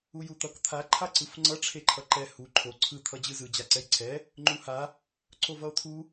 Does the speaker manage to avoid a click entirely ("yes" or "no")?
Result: no